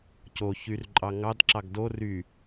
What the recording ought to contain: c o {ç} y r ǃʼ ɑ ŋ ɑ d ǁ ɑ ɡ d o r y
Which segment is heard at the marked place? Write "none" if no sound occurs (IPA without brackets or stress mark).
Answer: ç